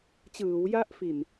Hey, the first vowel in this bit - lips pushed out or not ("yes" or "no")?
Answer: no